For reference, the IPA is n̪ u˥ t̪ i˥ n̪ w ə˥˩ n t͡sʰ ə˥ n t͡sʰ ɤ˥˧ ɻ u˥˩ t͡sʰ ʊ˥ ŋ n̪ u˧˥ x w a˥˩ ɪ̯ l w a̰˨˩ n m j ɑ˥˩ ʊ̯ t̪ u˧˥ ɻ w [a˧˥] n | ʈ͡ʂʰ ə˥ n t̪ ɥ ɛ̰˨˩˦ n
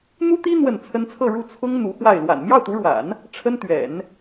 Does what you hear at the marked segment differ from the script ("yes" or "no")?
yes